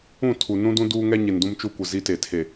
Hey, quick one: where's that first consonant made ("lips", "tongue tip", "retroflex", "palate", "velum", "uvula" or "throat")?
tongue tip